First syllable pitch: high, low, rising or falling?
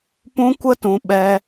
high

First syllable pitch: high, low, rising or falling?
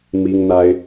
high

